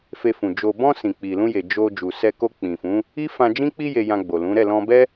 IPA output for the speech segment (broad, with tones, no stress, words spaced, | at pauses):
fe˧fũ˨ d͡ʒo˨bɔ̃˧ sĩ˨k͡pi˨lũ˧je˨ d͡ʒo˧ d͡ʒu˨sɛ˧ko˧ k͡pĩ˨fũ˨˦ | i˦fã˧d͡ʒĩ˦k͡pi˦ je˧jã˧ɡ͡bo˨lũ˨˦ ɾɛ˦˨lɔ̃˧bɛ˦